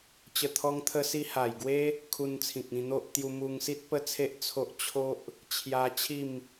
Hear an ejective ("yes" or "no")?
no